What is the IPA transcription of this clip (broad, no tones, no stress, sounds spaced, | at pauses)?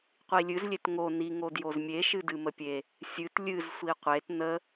qʷ i lʲ ɨ z lʲ e t ŋ o n i ŋ o d j o z mʲ e ʃ ɨ d ɨ m ə pʲ e | sʲ ɨ t lʲ ɨ z sʷ i qʷ e t n ə